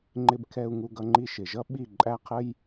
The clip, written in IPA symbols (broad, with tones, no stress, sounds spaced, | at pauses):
ŋ͡ǃ ɪ˧ b kʰ ɛ˧ u̯ ŋ u˧ ɡ ʌ˧ ŋ͡ǃ i˧ ʃ ɪ˨ ʒ ʌ˦ ɓ i˦˨ ǃʼ æ˦ qʰ ə˦ j